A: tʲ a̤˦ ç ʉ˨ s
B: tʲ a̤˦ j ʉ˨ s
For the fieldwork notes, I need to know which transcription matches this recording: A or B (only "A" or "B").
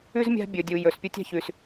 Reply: A